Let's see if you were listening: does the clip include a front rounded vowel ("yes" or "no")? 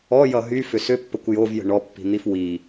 yes